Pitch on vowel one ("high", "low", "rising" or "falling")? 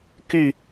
falling